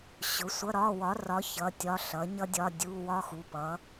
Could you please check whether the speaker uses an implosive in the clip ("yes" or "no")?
no